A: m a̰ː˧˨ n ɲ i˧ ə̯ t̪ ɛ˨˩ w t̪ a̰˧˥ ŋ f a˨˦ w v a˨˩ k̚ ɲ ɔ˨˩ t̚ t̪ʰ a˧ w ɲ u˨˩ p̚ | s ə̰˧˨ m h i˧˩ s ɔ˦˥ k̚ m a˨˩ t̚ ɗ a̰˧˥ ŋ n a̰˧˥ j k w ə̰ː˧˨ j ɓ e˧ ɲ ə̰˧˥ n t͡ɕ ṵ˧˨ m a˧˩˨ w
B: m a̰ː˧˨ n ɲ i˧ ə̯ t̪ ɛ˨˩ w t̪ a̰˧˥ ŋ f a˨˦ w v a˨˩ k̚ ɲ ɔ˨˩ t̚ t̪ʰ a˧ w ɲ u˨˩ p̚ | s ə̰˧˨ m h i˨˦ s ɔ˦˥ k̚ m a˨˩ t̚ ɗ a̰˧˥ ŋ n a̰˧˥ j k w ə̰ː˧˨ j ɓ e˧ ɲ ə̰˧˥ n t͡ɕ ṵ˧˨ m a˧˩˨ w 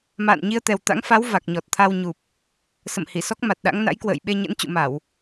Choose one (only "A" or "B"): A